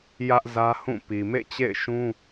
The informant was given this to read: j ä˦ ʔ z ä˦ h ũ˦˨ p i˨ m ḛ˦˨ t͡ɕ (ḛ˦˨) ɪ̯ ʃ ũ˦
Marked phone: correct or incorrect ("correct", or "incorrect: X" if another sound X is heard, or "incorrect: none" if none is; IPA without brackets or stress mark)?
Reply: correct